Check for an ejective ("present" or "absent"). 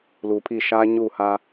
absent